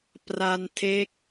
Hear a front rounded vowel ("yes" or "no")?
no